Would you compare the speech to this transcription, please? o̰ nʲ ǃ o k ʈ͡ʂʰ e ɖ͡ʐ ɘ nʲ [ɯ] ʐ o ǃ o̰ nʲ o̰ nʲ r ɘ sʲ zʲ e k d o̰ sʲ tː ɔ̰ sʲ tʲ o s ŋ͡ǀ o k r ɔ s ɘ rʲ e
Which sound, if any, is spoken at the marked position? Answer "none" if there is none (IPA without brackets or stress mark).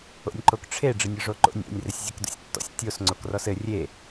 ɯ